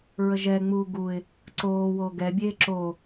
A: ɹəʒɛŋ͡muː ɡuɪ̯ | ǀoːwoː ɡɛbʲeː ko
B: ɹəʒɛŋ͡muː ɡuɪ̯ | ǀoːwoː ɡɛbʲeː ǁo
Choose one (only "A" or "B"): B